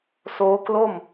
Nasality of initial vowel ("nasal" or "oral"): oral